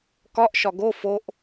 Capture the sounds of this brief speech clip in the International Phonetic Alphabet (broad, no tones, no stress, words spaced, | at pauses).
kɒʔʃɒ ɡo foʔ